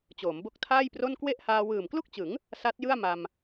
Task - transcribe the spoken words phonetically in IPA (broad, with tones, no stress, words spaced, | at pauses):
t͡ɕoː˩˦mbo˦˥k̚tʰaː˥˩jpro˥˩n kwe˥˩ʔhaː˧ wɯː˨˩mklu˥˩k̚t͡ɕɯ˩˦ŋ | sa˦˥t̚jɯ˥˩a̯ma˧m